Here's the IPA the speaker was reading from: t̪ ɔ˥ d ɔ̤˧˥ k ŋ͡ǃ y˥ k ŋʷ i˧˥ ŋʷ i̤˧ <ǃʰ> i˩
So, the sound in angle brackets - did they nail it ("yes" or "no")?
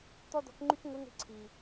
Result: no